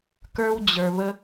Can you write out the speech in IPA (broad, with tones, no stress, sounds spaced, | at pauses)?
k ə˞˧ w d͡ʑ ə˞˩ β ə˧